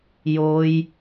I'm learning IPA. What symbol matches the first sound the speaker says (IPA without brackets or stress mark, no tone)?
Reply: j